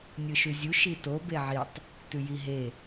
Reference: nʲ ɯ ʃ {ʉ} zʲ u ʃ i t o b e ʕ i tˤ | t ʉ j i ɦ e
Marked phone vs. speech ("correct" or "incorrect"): correct